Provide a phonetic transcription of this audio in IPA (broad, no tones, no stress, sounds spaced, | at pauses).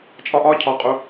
t͡ʃʼ ɒ ʔ ɒ cʰ ɒ qʼ u